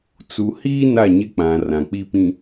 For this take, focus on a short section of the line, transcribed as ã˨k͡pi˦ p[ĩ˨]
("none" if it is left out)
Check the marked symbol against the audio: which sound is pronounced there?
ĩ˨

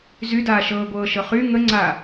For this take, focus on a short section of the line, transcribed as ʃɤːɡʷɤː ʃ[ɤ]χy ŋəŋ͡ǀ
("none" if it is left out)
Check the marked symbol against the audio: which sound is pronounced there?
ɤ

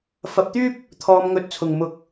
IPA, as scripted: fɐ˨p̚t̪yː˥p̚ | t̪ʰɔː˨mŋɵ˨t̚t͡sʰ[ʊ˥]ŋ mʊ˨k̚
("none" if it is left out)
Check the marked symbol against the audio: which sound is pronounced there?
ʊ˨˩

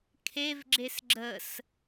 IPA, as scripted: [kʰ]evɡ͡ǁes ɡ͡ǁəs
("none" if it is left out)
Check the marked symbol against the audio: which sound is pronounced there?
kʰ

